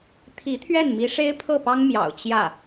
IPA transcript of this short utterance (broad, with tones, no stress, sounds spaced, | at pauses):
t̪ʰ i˧˥ t̪ʰ ɥ ɛ˥˩ n m i˧˥ ʂ e˥ ɪ̯ pʰ ɤ˥˩ p ɑ˥ ŋ m j ɑ̰˨˩ ʊ̯ t͡ɕ j ä˥˩